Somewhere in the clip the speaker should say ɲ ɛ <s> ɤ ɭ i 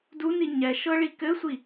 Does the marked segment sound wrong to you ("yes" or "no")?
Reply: yes